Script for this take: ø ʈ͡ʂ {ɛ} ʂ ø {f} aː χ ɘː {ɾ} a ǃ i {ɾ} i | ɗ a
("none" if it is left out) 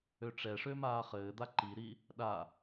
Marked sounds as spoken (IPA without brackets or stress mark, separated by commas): ɛ, m, d̪, ɾ